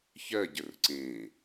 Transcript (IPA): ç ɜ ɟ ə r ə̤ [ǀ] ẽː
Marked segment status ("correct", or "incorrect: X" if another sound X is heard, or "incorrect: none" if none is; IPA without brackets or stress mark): correct